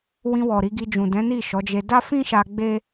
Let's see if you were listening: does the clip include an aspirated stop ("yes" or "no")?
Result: no